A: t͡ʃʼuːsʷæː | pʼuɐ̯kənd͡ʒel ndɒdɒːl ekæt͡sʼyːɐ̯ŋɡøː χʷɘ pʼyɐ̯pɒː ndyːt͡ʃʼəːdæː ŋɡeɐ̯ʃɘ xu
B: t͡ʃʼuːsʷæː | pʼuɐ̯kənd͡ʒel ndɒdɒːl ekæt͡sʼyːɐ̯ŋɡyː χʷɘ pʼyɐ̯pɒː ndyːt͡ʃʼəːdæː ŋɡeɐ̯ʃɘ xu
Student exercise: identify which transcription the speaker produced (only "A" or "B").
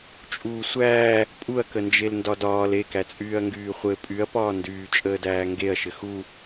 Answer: B